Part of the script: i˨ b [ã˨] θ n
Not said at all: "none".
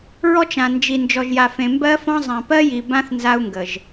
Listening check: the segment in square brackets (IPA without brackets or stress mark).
ã˦